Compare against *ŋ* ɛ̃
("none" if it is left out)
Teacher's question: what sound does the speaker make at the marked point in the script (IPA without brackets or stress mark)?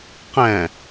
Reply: q